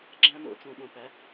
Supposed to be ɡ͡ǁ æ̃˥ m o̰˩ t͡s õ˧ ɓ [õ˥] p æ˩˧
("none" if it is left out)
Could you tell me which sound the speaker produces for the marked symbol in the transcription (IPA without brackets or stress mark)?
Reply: õ˩